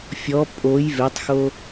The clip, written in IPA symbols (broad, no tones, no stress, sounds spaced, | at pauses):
fʲ ɔ pʼ o j v e tˤ x o